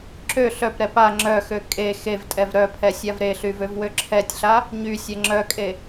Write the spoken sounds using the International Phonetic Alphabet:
ǁ ø ɬ œ p ɾ ɛ p a ŋ͡ǁ œ x ø kʼ e x e v tʼ ɛ v ɾ œ pʰ ɛ sʲ a v ɾ e ɬ y v ø v w ø ǁʰ ɛ tʲ ɬ a | ɲ y sʲ ɛ ŋ͡ǁ œ kʼ e

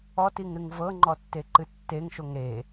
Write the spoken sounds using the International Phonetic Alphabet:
ɔ t i ŋ ɾ ɨ ŋ v ɤ ŋ͡ǃ ɔ tː e ǃ ɨ tː e ŋ ʃ o ŋ ɾ e

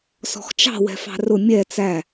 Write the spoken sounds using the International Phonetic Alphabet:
s ɔ̤ x t͡ʃ ɑ̤ w ɛ̤ f ɑ̤ r ʊ mʲ ɛ t͡s æ

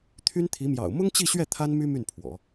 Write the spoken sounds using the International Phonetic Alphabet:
t̪ʰ y˥ n t̪ʰ i˧˥ m j ɑ̰˨˩ ʊ̯ m ʊ˥ ŋ t͡ɕ i˥˧ ɕ ɥ ɛ˥˩ t̪ʰ a˥ n m y˥ m y˥˩ n pʰ w ɔ̰˨˩˦

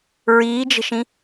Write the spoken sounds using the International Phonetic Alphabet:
ɹ iː d͡ʒ ə̤ ʃ ĩ

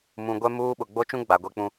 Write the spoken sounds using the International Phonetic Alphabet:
m ũ˨ ɡʷ ɛ˦ m uː˦ ɓ ʊ˨ ɡ͡b o˦ t͡ʃ ũ˦ ɡ͡b a˨ ɡʷ e˦ k͡p ũ˦

